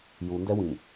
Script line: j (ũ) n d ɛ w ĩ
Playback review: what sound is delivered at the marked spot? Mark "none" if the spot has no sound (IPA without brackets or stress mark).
u